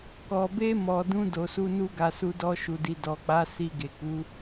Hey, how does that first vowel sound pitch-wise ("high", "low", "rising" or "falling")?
low